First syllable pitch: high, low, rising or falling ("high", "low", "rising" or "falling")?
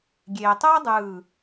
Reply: low